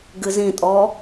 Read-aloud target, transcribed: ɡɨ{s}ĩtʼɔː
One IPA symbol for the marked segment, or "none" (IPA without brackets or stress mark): z